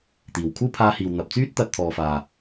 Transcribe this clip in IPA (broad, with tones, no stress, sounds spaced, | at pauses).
t̪ iː˨ w kʰ uː˥ pʰ aː˧ h iː˨ w n̪ ɐ˨ p̚ t͡s yː˥ t̚ t̪ ɐ˧ t̚ t̪ʰ ɔː˨ f aː˨